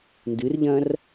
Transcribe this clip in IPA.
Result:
n d ɨ r ʎ ɐ̃ r

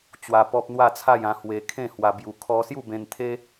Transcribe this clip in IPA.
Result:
t͡ɕ w a˧ p ɔ˦ p̚ n̪ w a˥˧ t͡sʰ a˥˧ j ã˧ h w e˧ kʰ ẽ˥˧ h w a˧ b j u˧ kʰ ɔ˦ s j u˥˧ b ẽ˧ n t̪ʰ e˦

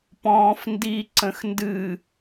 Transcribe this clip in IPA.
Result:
p ɔ̃ː f n d i ǀ ə̃ x n d ɨ

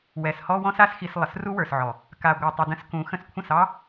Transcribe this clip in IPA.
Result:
w ɛ˨ s h ɔ˧ w ɔ̃˦ s a˦ s x i˧ s lˠ ə˨ s r u˦ w ə˞˨ s ʕ ɔ˨ | k a˨ ɡʷ ɑ˨ tˤ ə˨ d ə̃˧ s k ũ˨˦ x ə̃˧ s kʷʰ ə̃˦˨ s ɑ˦

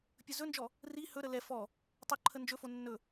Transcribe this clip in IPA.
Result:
pʲ ɵ z ɵ n d͡ʒ ɔ | r i h ɵ ɾ ə l ɛ f ɔ | tˤ o ǃʰ ə n d͡ʒ ɵ f o nː ɵ

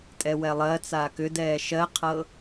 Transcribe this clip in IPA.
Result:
tʼ ɛ w ɛ lˠ ɜ t͡s aː k ʏ d ɛː ʃ ɜ qʰ ɤ

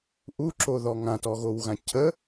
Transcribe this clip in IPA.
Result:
ʔ u ǁ o ð ɔ ŋ ã t ɔ ɣ o w ɣ ã cʰ ə

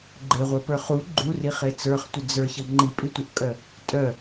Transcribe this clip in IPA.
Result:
ɡ͡ǃ e ʁʷ ə˞ p ə˞ χ u ɡ͡ǃ u r i χ e t͡s ə˞ χ tʷ ə d͡z ə˞ ç ʌ ŋ͡ǃ i pʼ i tʷ ɤ ʔ kʼ œ | tʼ œ

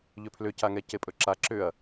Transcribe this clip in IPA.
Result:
ʎ ʏ pʰ l ʏ c a ŋ ɛ c e pʼ ɵ ǁ a ǁ ʏ ɐ̯

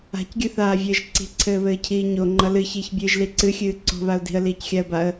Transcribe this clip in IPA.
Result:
a̤ c ɡʲ ɨ θ aː vʲ ɘː ʒ ǀ i̤ ǀʰ ɘː β ɘː cʰ iː ɲ o ŋ͡ǃ ʌ l ɨ ç iː ç bʲ ɨː ʒ l i ǀ ɨ xʲ ɨː ǀ o̤ β a ʊ̯ d i̤ ə̯ l iː c xʲ a ə̯ b a ə̯

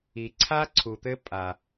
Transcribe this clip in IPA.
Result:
i˨ ǀʰ a˦ ǀʰ u˨ t̪ ɘ˦ pʼ a˨

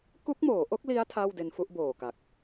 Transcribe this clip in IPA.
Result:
k u˦˥ k̚ m oː˩˦ ʔ o˦˥ k̚ l i˦˥ a̯ tʰ aː˥˩ w d e˧ n f u˥˩ ʔ b oː˨˩ k a˨˩ k̚

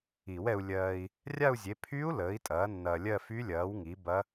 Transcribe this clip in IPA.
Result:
i˨˩˦ w ɛ˧ u̯ lʲ ɜː˧ i̯ | rʲ a˥˧ u̯ zʲ e˨˥ pʰ y˦˥ u̯ l əː˨˥ i̯ tʼ ɐː˨˥ nː ɐː˧ lʲ ɜ˥˧ f y˦˥ lʲ ɐː˨˥ w ŋ i˨˥ b ɐ˦˥

